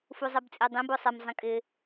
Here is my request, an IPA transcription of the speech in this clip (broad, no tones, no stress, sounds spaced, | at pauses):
f u zˤ ɛ b t͡sʼ i dˤ ĩ b o sˤ ɛ m zˤ ĩ kʼ ɪ